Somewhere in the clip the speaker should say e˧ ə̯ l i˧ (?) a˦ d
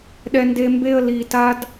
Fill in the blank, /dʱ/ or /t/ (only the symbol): t